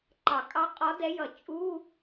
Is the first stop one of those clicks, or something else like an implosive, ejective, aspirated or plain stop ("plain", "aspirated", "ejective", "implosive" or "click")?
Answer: click